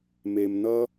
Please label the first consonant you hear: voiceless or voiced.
voiced